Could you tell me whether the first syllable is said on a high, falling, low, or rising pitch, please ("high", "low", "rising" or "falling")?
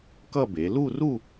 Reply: falling